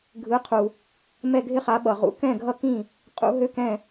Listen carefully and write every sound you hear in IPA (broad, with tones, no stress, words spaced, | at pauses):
ɡʱɯ˩˥qʰu˩ | mɛ˥˩ɡʱɪ˥χa˩˥ ɓʌ˩ʁṵ˩˥ kɛ̃˥˩ɡʱʌ˥˩kĩ˥˩ | qʼṵ˩˥ɦø˥kɛ̃˥˩